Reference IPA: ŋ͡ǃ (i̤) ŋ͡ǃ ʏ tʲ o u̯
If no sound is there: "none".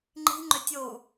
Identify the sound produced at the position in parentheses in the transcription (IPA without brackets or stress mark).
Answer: i̤